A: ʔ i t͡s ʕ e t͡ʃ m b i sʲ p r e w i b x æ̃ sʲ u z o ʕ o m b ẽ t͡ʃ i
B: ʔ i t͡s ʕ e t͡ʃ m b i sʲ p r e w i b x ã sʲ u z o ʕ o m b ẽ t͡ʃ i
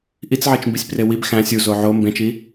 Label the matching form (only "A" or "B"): A